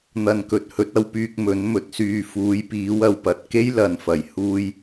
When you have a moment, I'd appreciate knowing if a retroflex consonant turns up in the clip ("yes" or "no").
no